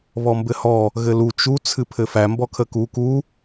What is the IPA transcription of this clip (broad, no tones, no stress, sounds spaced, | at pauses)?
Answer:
β ɔ m b ɘ h ɔ | ɣ ɘ l u t͡ʃ u t͡sʰ ɨ pʰ ɘ f æ m b ɔ kʰ ə k u k u